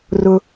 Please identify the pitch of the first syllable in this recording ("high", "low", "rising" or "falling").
high